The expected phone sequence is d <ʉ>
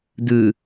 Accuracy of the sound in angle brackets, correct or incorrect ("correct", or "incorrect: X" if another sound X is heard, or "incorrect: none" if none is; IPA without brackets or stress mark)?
correct